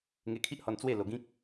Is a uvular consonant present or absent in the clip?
absent